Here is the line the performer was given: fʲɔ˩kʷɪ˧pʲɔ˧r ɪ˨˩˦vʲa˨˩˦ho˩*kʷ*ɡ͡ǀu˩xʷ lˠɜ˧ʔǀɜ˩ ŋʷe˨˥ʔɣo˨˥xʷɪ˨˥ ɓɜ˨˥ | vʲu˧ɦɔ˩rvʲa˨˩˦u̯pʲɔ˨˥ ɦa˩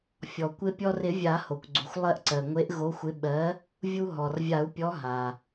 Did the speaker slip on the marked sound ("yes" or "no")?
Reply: no